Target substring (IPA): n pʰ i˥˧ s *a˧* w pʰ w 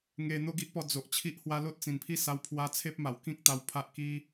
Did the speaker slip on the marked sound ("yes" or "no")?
no